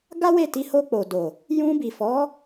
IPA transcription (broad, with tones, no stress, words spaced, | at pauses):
ɡa˦ we˦˨ti˨˦ ho˧k͡po˨do˨ | jũ˧bi˨fɔ˨˦